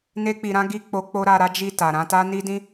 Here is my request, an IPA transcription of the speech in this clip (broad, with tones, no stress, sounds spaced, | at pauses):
n e˧ k͡p i˨ ɾ ã˨˦ ɡ i˦˨ k͡p o˧ k͡p o˦ ɾ a˧ ɾ a˦ d͡ʒ i˦˨ t a˨ ɾ ã˧ t a˦ n i˦ d ĩ˦